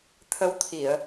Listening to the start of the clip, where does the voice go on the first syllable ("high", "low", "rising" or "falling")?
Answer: rising